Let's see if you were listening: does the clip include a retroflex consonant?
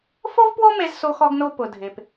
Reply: no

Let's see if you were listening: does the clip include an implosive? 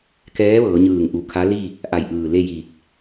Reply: no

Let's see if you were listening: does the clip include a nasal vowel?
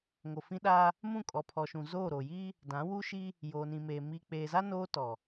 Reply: yes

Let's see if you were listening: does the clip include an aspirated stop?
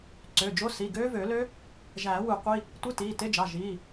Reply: no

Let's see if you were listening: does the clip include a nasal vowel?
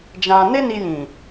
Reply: yes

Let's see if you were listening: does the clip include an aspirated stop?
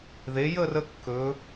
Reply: no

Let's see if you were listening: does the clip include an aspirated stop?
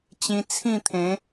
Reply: yes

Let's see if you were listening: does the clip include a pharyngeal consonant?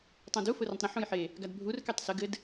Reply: yes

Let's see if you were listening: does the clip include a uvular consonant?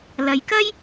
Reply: no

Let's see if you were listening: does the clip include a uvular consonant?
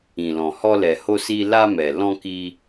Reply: no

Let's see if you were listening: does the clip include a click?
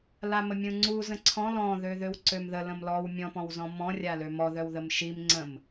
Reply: yes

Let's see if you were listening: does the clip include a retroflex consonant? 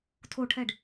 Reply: yes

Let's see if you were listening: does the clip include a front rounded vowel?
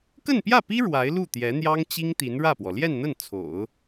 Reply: no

